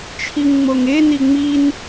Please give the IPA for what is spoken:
t͡ʃʰ i ŋ ŋ͡m o ŋ e n i ŋ͡m i n

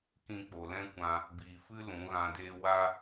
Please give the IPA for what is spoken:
k ĩ˧ k͡p o˨ l ɛ̃˦ kʷ ã˧ | b iː˨ f ɨ˦ l ũ˨˦ ɣ ã˧ d eː˦ w a˦

